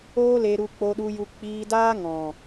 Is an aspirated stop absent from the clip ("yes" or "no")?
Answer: yes